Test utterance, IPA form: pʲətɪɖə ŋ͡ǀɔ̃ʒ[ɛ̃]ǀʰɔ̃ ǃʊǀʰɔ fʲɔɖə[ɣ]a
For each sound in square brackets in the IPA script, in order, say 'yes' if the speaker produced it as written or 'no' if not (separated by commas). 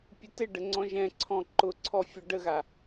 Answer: yes, yes